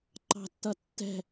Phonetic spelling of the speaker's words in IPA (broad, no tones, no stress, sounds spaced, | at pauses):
ǃ ɑ̤ tː ʌ tː ɛ̤